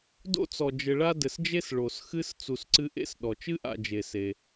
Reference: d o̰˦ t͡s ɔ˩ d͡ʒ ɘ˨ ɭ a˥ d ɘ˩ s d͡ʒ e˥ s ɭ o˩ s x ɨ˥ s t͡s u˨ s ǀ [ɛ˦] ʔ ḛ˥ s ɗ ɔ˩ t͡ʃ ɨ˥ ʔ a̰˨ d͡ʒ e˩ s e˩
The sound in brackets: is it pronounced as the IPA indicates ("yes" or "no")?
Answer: no